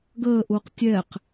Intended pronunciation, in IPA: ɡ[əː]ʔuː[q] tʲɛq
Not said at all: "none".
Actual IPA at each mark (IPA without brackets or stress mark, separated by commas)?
əː, q